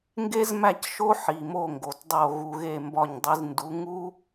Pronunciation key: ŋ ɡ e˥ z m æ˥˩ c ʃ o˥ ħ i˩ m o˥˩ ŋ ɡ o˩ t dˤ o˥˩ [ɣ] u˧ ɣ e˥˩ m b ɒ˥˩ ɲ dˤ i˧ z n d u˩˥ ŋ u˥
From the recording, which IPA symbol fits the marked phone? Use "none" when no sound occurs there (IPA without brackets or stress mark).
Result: ɣ